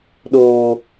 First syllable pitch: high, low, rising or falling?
high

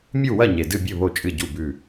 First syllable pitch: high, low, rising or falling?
falling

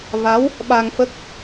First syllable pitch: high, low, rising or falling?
rising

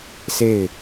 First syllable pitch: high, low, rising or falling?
falling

